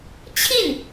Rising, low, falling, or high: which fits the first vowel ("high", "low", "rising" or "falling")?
falling